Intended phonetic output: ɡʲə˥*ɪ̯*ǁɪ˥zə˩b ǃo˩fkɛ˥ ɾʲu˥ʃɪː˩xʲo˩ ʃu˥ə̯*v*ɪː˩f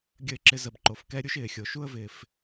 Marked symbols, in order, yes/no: yes, yes

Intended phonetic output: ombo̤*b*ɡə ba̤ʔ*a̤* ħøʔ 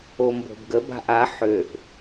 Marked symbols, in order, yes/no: yes, no

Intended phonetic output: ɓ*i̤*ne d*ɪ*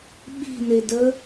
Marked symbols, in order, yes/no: yes, no

